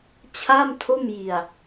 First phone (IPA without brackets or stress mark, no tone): t͡ɕʰ